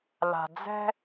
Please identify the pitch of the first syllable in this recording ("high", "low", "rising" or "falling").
low